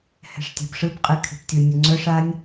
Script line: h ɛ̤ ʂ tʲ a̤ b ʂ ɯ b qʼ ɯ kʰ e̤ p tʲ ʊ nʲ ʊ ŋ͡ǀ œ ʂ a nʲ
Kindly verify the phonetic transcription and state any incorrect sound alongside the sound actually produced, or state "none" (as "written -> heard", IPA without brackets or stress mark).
none